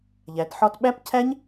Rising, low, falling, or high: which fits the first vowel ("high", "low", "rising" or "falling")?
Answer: rising